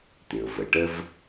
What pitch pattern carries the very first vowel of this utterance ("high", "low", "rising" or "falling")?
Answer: low